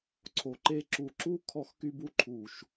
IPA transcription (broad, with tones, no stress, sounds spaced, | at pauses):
ǀʰ o˨ ǃ e˧ ǁ u˨ ǁ u˦ kʰ ɔ˧ x k y˧ b u˦ ǃʰ u˨ ʃ